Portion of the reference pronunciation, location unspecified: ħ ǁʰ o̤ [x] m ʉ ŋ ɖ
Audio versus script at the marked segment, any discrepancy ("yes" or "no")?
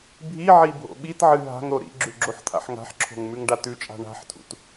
yes